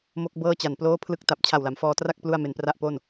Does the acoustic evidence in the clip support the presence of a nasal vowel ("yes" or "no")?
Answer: no